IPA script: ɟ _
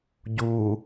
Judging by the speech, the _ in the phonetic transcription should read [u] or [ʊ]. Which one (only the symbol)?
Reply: u